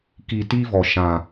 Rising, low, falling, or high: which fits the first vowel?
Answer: low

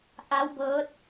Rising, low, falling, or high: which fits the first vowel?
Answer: rising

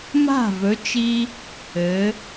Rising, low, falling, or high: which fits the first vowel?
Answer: falling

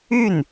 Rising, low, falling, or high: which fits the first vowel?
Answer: falling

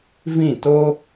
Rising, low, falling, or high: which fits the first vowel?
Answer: falling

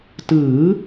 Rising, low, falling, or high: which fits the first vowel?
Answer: rising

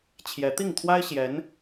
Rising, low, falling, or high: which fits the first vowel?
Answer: rising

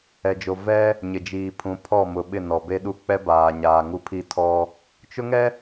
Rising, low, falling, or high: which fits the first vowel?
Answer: low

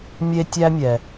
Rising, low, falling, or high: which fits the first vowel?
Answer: high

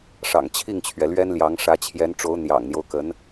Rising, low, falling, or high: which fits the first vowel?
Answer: low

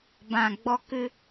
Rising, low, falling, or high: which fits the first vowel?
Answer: low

